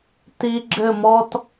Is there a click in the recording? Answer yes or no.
yes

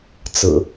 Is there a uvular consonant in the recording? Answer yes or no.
no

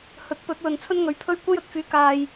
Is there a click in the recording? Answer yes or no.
no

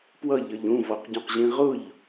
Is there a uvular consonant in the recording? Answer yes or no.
yes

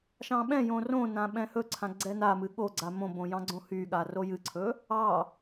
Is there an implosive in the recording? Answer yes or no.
yes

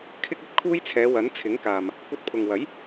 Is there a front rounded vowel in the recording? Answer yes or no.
no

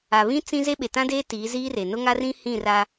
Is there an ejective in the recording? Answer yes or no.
no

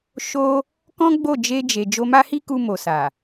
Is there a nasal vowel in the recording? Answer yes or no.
yes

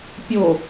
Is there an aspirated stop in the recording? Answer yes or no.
no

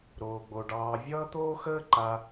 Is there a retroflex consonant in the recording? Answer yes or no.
yes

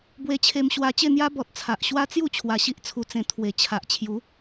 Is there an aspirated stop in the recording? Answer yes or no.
yes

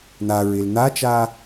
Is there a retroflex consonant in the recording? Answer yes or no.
no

